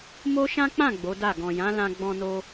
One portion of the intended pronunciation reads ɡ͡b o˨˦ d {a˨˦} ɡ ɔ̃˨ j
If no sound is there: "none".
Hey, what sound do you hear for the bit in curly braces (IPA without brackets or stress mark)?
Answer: a˦˨